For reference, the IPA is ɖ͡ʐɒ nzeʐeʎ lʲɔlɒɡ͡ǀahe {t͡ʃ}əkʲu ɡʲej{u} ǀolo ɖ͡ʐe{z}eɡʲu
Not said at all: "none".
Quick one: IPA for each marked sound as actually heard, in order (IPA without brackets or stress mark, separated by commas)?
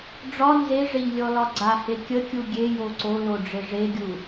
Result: kʲ, o, ʐ